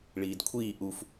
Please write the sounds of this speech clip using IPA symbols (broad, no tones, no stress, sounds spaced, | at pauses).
ɭ iː d kʷʰ iː ʔ u f